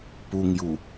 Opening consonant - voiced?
no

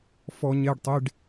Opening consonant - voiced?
no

